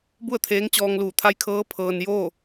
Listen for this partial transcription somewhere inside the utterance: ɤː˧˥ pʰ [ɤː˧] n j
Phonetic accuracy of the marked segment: correct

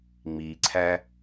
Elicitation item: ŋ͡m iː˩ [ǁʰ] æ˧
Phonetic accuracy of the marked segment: incorrect: ǀʰ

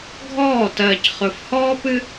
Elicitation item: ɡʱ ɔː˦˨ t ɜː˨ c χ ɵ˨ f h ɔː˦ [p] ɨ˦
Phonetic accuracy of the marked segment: correct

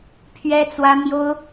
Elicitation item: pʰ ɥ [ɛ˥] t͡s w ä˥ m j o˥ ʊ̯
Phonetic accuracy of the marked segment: correct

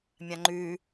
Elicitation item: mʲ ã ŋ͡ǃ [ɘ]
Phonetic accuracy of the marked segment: incorrect: ʉ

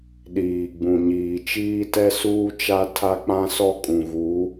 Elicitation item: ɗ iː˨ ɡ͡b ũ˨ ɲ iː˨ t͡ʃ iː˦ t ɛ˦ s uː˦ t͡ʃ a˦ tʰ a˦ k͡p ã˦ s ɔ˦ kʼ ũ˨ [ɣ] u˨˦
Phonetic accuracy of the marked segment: correct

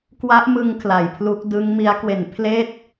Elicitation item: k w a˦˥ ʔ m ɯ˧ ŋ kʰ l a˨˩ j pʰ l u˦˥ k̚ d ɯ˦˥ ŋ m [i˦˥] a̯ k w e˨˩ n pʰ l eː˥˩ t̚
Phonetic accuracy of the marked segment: correct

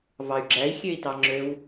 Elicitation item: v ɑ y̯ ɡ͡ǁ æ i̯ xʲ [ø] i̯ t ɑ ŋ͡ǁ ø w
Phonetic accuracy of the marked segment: correct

